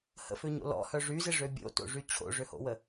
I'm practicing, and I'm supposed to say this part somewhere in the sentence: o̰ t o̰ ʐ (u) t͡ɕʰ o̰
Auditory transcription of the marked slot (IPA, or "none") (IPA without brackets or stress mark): y